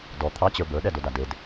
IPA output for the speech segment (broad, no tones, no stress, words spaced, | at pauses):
dɔ t̪ʰɑt͡ɕə˞ bə˞ɗɛdoda ded